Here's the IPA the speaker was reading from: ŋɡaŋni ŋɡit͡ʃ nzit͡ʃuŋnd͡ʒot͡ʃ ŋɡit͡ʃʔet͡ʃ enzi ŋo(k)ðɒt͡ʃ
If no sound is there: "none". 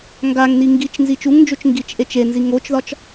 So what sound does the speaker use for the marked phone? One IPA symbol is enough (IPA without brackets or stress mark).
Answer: t͡ʃ